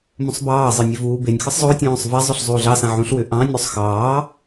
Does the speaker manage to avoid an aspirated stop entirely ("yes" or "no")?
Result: yes